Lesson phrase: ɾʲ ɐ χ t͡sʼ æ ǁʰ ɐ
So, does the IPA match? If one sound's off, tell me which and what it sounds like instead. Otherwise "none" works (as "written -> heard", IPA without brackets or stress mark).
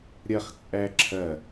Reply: none